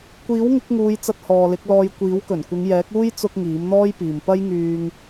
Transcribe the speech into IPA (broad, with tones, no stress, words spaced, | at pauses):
kʷiː˨˥wŋɪ˨˥k̚ŋuː˨˧j t͡sɐ˧t̚hɔː˨lɪ˨˥k̚lɔː˧j kʷiː˨˥wkɵ˨˩nkʷɪ˨˧ŋjɛː˨˥k̚ uː˧j t͡sʊ˧k̚ ŋiː˨˥mn̪ɔː˥jpiː˨m pɐ˥jŋyː˧ŋ